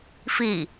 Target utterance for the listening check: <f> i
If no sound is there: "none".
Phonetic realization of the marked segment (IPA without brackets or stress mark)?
f